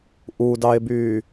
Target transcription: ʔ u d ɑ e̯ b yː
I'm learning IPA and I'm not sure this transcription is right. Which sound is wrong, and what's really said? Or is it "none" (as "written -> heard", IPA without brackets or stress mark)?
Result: none